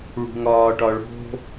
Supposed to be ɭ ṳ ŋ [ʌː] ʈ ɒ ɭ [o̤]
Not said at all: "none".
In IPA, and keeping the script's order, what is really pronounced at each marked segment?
ɒː, o̤

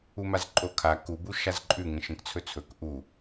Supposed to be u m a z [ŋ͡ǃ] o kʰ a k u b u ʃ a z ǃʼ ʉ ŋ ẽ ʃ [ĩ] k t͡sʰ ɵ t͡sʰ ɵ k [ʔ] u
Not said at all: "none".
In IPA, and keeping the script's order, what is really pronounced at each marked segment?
ǃʼ, ẽ, ʔ

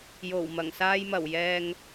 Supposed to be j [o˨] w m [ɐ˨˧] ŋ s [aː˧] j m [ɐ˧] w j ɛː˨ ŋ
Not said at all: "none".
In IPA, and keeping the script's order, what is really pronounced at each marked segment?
o˨˩, ɐ˨˩, aː˧, ɐ˨˩

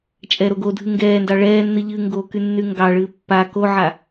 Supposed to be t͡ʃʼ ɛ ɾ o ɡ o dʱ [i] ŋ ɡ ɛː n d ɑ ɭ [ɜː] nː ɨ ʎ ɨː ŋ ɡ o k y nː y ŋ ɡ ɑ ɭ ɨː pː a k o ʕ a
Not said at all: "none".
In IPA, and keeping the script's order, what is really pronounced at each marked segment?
ɨ, ɛː

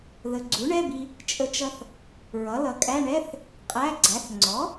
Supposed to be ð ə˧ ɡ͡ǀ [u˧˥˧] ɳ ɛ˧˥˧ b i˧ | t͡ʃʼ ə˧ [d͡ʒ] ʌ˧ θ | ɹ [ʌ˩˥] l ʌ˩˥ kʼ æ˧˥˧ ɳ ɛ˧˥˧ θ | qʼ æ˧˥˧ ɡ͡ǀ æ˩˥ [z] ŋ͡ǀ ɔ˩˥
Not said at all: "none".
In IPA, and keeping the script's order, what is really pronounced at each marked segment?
u˩˥, t͡ʃ, ʌ˩˥, θ

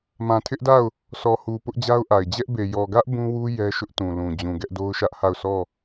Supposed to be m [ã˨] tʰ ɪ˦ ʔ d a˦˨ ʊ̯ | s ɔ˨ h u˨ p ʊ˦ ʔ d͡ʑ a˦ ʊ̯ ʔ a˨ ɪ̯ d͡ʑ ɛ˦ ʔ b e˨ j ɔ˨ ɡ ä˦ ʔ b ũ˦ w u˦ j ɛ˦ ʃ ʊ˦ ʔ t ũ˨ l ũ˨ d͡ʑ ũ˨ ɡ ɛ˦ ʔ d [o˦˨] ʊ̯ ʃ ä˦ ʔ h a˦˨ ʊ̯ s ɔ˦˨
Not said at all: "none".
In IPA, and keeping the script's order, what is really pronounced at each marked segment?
ã˨, o˦

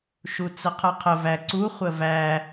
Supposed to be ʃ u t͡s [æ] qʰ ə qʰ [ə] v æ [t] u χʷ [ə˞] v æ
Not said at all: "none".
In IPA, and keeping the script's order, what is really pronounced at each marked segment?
ə, ə, ǀ, ə

